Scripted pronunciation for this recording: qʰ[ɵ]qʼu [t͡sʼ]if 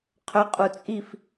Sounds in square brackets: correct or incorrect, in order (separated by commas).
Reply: correct, correct